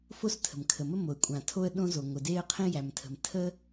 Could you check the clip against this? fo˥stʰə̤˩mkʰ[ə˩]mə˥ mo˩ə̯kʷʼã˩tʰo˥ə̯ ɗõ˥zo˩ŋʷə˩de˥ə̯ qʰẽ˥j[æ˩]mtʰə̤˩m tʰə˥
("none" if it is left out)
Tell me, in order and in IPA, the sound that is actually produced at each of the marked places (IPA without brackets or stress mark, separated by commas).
ə˩, æ˩